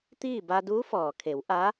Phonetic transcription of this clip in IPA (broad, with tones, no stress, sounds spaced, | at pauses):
t̪ iː˥˨ b a˧ d uː˧˥ f ɔː˩ kʰ e˩˧ w ʔ a˧˥